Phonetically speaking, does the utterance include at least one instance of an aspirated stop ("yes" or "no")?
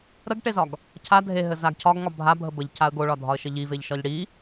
yes